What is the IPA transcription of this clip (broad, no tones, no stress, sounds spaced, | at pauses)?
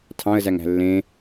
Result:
tʰ ɑ̃ ə̯ z æ ŋ æ̤ lː ẽ